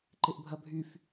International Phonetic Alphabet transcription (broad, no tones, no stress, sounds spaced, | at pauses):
ǃ ɪ ʔ bʱ ɐ bʱ y f